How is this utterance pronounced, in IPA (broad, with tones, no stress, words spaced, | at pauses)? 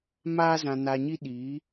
maː˧zã˨na˨ɲi˧ ɗiː˨˦